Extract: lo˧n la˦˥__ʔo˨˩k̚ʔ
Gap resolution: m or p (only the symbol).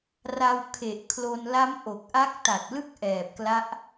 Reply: m